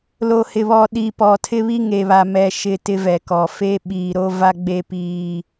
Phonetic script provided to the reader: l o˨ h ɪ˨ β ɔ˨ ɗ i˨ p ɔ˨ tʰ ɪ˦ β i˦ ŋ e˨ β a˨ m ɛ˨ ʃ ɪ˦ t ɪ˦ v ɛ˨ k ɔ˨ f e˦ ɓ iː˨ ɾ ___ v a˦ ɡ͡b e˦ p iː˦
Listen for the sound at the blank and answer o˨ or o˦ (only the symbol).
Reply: o˦